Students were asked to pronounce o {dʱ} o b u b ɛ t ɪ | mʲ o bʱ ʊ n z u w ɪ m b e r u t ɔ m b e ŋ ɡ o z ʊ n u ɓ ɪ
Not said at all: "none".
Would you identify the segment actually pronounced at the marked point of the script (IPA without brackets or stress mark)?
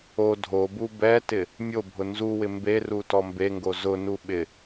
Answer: dʱ